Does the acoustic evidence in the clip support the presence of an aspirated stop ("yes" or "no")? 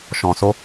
no